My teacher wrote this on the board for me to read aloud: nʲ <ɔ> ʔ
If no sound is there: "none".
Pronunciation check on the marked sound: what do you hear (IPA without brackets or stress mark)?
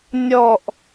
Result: ɔ